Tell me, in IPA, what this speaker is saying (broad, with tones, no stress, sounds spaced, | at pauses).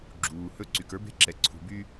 ɡ͡ǁ uː˩ h ɵ˥ ǀ y˩ k ə˞˥ b e̤˥ ǁ ɛ˩ ǀʰ ṳ˩ b y˥